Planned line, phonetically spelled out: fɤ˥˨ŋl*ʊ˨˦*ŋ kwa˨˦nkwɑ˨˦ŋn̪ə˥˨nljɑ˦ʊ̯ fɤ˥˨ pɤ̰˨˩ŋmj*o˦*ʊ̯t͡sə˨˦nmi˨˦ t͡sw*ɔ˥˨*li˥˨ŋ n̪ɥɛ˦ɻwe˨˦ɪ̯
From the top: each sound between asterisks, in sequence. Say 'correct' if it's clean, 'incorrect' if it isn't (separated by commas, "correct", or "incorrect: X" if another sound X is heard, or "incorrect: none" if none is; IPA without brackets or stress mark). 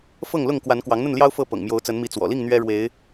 incorrect: ʊ˥˨, incorrect: o˨˦, incorrect: ɔ̰˨˩